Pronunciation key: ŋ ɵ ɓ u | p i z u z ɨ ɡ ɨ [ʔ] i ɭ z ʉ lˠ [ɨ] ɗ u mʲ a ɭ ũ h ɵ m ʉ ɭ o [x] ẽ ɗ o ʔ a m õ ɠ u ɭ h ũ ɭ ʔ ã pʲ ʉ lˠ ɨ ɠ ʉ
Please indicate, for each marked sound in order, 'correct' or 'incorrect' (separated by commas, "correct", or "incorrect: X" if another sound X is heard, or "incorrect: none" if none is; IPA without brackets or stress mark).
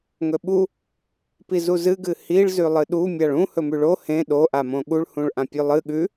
incorrect: h, correct, incorrect: h